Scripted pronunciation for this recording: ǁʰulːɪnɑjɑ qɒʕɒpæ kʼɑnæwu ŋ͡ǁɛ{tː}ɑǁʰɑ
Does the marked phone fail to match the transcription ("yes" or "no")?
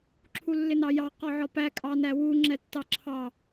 no